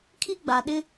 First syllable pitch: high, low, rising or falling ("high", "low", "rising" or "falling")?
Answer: high